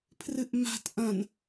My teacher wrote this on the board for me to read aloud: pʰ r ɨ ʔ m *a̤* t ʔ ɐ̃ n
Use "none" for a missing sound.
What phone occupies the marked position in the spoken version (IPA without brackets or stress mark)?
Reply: a̤